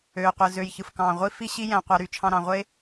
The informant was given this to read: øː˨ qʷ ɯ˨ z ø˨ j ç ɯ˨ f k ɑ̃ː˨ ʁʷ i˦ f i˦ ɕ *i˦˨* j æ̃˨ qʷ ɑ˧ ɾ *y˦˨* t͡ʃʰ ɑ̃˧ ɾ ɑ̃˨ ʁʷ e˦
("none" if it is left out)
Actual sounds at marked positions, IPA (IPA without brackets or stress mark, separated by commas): i˦, y˧